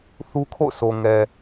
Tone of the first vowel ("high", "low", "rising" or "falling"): high